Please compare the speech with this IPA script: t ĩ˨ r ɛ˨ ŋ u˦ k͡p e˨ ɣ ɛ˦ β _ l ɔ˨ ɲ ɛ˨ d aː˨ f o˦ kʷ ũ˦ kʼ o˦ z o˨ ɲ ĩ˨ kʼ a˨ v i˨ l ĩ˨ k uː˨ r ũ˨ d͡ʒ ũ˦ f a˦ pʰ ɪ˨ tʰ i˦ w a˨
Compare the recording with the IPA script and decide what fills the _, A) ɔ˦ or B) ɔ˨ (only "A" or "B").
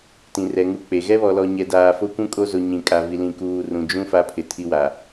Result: B